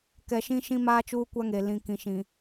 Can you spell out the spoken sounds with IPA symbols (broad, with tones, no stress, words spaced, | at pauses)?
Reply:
kɛ˨ʃĩ˦ʃĩ˦ maː˦t͡ʃuː˦kʷa˦ŋe˨ lĩ˨kĩ˨ʃĩ˨